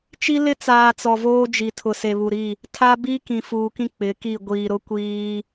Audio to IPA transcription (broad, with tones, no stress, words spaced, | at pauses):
t͡ʃi˦lɪ˦t͡saː˨ t͡sɔ˨voː˦d͡ʒi˨ tʰʊ˨se˨βu˨ɾi˦˨ | tʰa˦ bi˦ kĩ˨fuː˨kĩ˦ k͡pɪ˨˦ki˦˨ ɡʷiː˨ɾʊ˦kʷiː˦